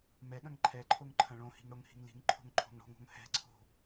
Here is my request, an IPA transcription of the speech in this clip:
m ɛ ɠ ɐ̃ ŋ ǃʰ ɛ ǃʰ o ŋ ǃʰ ɐ̃ ɭ õ h i̤ ŋ ɽ o ŋ h i̤ ŋ l i̤ ŋ ǃʰ o̤ ŋ ǃʰ o̤ ŋ ɽ o̤ ŋ o̤ ŋ h ɛ̤ ǀʰ o̤

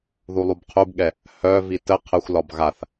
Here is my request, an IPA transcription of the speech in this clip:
ð u lˠ u b qʰ u b ɠ ɛ | h œ v i t ə qʰ ə xʷ l ɒ b ɣ a θ

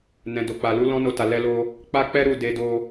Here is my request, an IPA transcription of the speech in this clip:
n ɛ̃˨ d o˨ k͡p a˨ l u˨˦ l ɔ̃˦ n o˧ t a˨ l ɛ˧ l o˧ | k͡p a˦ k͡p ɛ˦ ɾ u˦˨ d e˧ d o˧

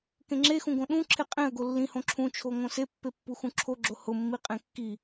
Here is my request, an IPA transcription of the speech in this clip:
k ẽ ŋ͡ǁ e x ũ ɡ õ ɗ ũ ǁʰ e qʼ ẽ ə̯ ɡ o lː ĩ h õ ǁʰ ũ t͡ʃʰ o ŋ õ s e pː e pː u x ũ ǁʰ o ɡ͡ǁ o h ʊ mː i qʼ ẽ kː i

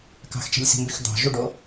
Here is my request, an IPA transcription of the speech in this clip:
k ɑ̤ x t͡ʃ i̤ lʲ s i̤ m b y x d̪ ɑ̤ ʒ u ɖ o

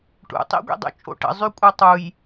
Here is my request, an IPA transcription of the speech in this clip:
ʈ ṵ tˤ ḭ ɡʷ ḭ dˤ ṵ t͡ʃʼ o̰ ʈ ə̰ zˤ y kʷʼ œ tˤ u j

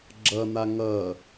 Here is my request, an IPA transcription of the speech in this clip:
ɡ͡ǁ ʌ n̪ a ŋ ʌ

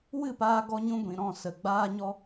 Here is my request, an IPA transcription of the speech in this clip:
w ɨ˦˨ p aː˧ ɡ ɔ˧ ɲ ũ˧ ɡʷ ĩ˨ ɾ ɔ̃˦˨ s ə˨ ɡ͡b aː˦ ɲ ɔ˧

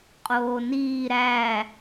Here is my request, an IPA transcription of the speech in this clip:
qʼ oː n iː ɾ æ

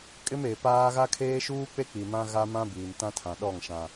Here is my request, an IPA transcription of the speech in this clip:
kʼ ɪ˦ m e˨ p aː˦ ɣ a˦ kʰ eː˦ ʃ uː˦ k͡p e˦ k͡p i˨ m ã˦ ɣ a˦ m ã˦ b iː˨ m t ã˦ tʰ ã˨ ɗ ɔ˦˨ ŋ ʃ ã˨

